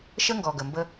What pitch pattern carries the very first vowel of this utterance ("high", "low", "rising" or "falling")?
high